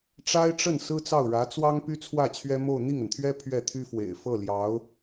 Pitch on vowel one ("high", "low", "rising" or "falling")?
high